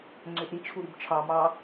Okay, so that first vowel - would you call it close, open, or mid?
mid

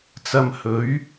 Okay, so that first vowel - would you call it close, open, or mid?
open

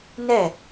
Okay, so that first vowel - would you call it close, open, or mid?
mid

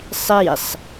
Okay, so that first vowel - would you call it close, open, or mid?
close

